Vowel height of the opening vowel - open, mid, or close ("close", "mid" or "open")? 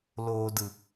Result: mid